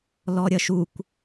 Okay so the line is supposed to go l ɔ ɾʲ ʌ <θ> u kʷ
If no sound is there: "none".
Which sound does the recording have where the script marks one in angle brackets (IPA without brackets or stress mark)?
ʃ